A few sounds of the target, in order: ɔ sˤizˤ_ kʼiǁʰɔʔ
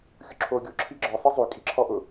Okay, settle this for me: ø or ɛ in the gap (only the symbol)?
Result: ø